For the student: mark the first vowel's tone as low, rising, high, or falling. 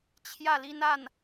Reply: falling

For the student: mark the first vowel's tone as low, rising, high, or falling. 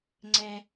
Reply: low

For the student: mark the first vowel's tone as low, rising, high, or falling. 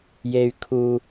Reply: low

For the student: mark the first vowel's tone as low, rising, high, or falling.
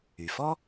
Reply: low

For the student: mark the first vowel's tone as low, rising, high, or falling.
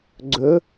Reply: rising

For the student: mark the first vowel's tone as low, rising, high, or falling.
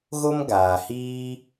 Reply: high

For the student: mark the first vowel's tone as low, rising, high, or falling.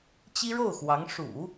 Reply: high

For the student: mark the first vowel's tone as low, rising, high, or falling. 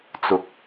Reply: low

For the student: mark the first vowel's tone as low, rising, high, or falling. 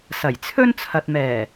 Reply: low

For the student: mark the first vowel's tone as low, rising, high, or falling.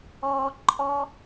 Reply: high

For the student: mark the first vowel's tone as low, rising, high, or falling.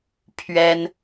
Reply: high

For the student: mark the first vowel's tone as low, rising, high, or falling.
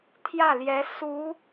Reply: falling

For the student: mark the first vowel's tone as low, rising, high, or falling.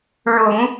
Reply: low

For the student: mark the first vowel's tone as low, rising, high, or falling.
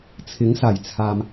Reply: rising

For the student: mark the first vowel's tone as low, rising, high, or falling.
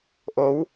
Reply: rising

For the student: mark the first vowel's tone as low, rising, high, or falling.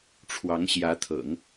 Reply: rising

